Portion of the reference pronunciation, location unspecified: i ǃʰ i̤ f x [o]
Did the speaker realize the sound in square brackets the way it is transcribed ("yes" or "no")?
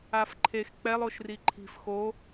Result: yes